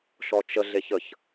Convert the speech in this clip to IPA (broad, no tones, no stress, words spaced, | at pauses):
ʃɔt͡ʃə ɮeçəç